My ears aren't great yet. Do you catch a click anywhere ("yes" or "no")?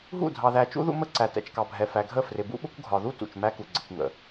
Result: yes